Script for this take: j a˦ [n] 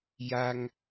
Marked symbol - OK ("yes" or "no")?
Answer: no